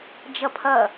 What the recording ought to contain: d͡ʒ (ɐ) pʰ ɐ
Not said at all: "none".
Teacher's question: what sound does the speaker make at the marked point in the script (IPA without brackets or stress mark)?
ɐ